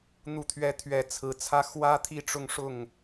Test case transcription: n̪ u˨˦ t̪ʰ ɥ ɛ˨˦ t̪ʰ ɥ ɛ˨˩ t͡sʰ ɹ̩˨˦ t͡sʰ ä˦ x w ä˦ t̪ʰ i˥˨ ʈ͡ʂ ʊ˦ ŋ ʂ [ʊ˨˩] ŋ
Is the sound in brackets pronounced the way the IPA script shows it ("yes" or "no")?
no